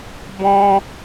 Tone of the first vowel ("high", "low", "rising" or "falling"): high